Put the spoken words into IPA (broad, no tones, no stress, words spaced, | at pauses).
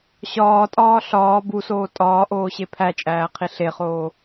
ɕɒːtʼɒː ɬɒː busoː tʼɒːʔoːɕe pʰæt͡ʃʼæːqʰi ɬeχoː